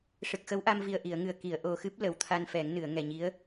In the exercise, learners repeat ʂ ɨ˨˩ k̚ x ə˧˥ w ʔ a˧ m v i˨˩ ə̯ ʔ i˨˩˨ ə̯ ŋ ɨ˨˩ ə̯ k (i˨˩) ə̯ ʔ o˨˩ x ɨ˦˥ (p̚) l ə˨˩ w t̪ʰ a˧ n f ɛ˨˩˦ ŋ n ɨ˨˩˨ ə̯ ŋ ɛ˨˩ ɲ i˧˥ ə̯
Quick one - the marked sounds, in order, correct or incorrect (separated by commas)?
incorrect, correct